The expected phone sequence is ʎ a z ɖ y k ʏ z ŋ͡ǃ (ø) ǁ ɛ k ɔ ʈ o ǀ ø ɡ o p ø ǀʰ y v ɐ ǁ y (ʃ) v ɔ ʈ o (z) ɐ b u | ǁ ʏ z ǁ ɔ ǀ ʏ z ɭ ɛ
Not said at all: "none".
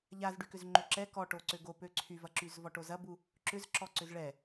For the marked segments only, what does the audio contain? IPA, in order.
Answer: ø, z, z

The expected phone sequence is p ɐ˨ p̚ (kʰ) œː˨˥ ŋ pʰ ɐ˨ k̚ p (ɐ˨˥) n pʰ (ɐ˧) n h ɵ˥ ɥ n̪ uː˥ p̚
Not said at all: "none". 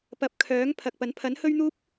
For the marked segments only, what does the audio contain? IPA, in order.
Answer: kʰ, ɐ˨˥, ɐ˨˥

